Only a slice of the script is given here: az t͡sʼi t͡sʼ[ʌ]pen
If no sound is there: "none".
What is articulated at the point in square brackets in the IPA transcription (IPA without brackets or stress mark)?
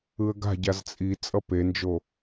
ʌ